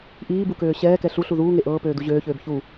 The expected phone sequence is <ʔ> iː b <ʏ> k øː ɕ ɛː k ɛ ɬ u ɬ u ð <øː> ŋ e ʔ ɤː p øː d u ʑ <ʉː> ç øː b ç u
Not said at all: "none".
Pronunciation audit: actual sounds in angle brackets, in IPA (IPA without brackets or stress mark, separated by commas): ʔ, u, uː, øː